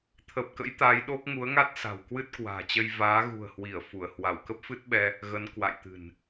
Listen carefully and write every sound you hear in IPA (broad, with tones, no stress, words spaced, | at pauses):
t̪ʰə˨˩p̚kə̰˧˥j t̪a˨˦jɗo˦˥k̚ ŋu˨˦ə̯ŋa˦˥t̚ sa̤˨˩w kwɨ˦˥t̚kwa̤ː˨˩t͡ɕə˧j vaː˨˦ɣṳ˨˩ə̯hwi˧˩ə̯ fu˧˩ə̯ hwa˧˩wkə˦˥p̚fɨ˦˥t̚ɓɛ˧ | ɣə˨˦n kwa̰˧˨j t̪ɨ̤˨˩n